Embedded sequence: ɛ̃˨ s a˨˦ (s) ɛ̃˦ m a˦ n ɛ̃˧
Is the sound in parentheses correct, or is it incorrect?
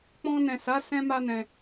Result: correct